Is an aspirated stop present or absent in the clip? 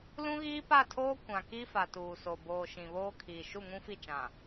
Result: present